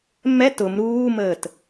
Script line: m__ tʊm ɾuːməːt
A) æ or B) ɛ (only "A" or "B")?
B